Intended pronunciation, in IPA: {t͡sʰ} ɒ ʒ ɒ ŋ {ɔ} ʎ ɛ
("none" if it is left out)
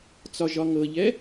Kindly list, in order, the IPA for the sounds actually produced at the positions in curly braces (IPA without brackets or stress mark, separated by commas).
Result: t͡s, ɤ